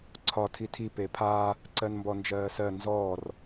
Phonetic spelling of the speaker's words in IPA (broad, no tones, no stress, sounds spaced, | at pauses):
ǀʰ ɒ tʰ i tʰ i p e pʰ aː | ǀ ɜ n m b ɔ n d͡ʒ ɜː s ɜ n z ɔː r